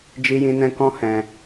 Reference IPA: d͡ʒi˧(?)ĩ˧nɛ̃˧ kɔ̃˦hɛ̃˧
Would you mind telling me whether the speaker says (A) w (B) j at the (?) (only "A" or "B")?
B